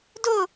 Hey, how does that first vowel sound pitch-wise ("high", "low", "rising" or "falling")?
falling